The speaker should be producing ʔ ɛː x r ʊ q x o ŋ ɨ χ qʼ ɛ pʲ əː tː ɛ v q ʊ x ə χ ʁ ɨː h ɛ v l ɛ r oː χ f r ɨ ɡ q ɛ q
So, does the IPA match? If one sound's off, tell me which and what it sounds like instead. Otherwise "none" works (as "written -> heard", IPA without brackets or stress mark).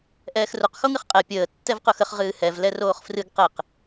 none